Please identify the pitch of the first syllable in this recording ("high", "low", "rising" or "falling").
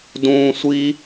high